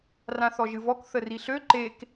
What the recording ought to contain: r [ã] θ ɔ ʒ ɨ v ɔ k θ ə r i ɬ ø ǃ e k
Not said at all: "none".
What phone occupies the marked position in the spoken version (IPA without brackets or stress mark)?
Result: ã